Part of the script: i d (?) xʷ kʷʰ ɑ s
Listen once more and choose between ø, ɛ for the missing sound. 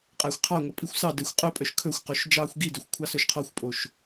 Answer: ø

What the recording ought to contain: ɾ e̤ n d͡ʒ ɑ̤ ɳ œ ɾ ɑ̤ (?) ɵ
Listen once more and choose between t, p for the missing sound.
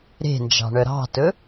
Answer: t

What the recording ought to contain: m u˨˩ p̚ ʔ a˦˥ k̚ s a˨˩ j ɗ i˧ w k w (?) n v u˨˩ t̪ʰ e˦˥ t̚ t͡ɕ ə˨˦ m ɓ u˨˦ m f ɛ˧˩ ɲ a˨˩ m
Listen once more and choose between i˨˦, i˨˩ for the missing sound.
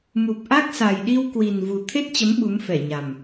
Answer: i˨˩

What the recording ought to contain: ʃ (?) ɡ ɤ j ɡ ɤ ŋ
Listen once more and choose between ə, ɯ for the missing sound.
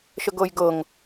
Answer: ə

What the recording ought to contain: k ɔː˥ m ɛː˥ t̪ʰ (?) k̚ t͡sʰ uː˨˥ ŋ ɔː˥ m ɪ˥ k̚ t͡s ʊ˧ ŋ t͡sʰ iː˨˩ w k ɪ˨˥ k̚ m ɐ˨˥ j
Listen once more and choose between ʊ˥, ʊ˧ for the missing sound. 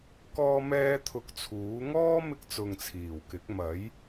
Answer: ʊ˧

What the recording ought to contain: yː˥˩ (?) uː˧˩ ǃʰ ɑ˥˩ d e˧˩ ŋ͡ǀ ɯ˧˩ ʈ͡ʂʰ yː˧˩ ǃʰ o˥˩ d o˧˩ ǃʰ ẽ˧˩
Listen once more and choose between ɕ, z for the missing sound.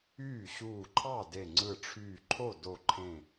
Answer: ɕ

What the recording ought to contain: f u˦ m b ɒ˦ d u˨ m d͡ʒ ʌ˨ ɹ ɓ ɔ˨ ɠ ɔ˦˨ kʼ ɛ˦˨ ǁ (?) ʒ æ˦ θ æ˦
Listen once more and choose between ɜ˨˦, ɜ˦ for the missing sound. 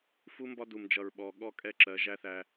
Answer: ɜ˨˦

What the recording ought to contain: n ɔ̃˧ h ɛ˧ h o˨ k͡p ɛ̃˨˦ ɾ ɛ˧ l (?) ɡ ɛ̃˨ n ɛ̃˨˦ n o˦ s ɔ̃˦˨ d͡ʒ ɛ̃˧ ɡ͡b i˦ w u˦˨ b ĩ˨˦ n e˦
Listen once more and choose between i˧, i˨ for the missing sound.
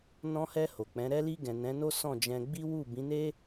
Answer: i˧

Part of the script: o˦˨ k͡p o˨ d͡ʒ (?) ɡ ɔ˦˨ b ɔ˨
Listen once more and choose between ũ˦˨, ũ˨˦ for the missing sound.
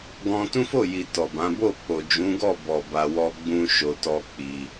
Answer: ũ˨˦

